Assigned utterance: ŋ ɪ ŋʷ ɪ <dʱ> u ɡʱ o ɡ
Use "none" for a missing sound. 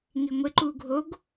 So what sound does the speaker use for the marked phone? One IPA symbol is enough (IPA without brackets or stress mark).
ǃ